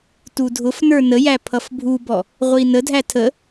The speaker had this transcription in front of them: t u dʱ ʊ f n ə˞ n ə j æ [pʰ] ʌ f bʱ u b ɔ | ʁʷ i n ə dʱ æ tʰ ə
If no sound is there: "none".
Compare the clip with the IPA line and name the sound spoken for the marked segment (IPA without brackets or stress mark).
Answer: pʰ